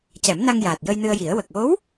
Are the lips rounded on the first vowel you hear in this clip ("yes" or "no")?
no